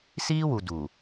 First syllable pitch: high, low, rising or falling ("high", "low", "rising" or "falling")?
high